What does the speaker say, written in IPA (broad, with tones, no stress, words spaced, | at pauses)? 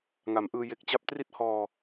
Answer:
ŋa˩˦mʔɯː˧ je˦˥k̚ t͡ɕa˦˥p̚tri˥˩t̚hɔː˧